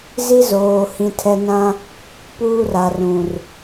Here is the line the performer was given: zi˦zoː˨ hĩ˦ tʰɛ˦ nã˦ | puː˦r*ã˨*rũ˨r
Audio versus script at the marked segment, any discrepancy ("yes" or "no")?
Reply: yes